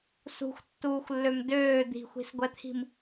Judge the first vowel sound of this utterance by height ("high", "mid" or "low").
high